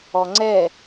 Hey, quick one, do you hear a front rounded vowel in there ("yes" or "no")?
no